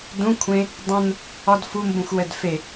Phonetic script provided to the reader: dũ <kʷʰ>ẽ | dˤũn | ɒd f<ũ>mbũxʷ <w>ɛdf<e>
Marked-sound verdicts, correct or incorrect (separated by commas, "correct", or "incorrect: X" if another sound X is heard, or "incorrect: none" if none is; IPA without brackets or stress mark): correct, incorrect: u, correct, correct